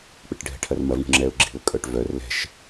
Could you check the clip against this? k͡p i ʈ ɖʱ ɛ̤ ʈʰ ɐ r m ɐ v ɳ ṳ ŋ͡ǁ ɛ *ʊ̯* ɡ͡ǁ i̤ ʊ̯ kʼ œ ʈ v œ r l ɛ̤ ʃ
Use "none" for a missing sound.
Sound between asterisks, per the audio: ʊ̯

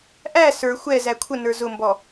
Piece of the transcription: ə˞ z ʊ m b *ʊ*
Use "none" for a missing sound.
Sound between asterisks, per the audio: ɔ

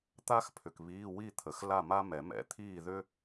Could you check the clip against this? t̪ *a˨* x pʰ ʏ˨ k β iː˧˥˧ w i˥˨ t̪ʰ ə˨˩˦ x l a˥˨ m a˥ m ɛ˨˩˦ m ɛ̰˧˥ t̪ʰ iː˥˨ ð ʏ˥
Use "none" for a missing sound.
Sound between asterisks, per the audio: a˥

